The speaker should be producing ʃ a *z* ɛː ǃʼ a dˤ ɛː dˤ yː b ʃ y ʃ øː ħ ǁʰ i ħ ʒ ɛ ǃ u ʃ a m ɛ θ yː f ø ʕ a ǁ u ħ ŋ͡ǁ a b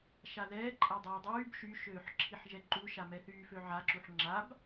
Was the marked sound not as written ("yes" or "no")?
yes